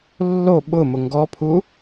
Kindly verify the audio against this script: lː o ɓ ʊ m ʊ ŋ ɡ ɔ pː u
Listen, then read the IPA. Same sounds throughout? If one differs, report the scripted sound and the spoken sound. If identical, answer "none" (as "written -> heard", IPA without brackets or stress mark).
pː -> pʰ